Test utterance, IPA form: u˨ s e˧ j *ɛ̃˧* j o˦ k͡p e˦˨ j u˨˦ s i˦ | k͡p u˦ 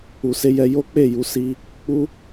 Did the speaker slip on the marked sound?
yes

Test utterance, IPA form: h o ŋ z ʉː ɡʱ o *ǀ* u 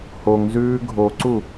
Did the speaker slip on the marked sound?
no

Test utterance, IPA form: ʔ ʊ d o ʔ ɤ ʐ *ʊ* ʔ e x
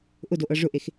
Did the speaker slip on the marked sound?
no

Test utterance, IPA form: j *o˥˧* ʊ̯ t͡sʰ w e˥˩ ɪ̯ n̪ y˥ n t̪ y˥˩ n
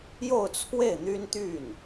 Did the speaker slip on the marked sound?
no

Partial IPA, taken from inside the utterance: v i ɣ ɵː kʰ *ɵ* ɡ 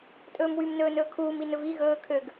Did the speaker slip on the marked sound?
yes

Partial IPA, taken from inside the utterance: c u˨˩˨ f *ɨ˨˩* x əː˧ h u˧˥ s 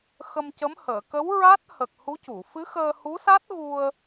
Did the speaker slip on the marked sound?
yes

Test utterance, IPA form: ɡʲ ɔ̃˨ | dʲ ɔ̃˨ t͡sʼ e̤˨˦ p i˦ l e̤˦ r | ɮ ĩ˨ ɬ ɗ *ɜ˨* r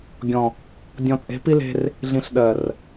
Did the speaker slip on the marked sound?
no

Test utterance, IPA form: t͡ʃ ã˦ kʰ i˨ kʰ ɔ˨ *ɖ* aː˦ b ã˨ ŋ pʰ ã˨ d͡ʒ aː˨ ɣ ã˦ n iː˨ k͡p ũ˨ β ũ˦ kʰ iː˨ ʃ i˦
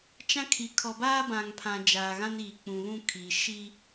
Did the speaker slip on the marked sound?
yes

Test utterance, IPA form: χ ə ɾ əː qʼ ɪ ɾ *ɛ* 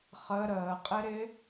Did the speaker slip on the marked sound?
yes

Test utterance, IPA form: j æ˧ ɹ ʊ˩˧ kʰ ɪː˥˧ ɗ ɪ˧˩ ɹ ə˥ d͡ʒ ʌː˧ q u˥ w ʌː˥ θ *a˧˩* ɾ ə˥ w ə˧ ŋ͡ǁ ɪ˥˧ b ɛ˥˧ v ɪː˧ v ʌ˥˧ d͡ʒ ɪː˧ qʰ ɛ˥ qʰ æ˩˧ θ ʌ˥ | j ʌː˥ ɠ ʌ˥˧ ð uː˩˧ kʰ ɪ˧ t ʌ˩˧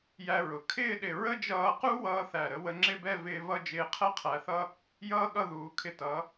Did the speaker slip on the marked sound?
yes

